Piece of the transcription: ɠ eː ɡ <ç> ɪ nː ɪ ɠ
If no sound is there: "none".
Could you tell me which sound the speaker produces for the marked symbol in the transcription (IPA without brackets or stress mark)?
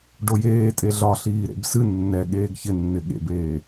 ç